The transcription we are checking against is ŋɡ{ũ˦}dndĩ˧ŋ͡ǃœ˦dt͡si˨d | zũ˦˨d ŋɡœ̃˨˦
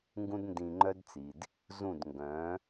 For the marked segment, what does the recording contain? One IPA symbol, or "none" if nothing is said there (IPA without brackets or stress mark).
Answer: ũ˦